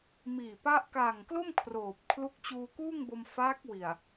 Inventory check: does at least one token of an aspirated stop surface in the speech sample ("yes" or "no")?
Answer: yes